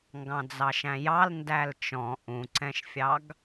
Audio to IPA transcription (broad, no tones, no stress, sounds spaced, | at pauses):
ŋ ɡ ɑ̃ d͡z ɑ ʃ æ̃ j ɑ l n d æ l t͡ʃ ɔ̃ ʔ ũ ǀ ɛ̃ ʃ fʲ ɑ ɡ